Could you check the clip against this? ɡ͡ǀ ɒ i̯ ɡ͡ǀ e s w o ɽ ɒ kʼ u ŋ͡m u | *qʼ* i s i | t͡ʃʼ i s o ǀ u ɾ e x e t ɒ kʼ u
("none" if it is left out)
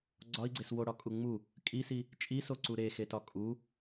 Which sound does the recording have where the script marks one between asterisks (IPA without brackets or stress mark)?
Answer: kʼ